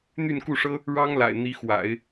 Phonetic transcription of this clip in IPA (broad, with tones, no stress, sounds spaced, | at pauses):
n̪ y˥˧ n k u˥˩ ʂ ɤ˥ | ɻ ɑ˥ ŋ l a̰˨˩ ɪ̯ n̪ i˧˥ x w a̰˨˩˦ ɪ̯